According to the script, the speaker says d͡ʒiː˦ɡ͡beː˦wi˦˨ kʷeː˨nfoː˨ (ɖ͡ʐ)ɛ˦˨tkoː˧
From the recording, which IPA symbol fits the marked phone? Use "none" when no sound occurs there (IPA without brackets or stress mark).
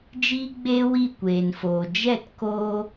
d͡ʒ